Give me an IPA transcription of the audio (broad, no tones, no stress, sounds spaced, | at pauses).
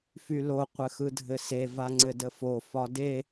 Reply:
f y l o qʷ ɘ x ɯ dʱ ɘ s e v a ŋ͡ǀ ɘ d ə f o f ɒ d e